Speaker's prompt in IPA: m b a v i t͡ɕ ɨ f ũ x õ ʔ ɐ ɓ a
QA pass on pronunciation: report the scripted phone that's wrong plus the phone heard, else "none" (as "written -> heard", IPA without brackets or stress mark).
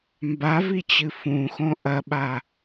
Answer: none